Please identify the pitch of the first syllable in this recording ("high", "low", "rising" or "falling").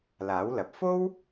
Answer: rising